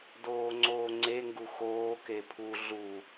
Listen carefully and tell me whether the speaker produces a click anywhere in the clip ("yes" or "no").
yes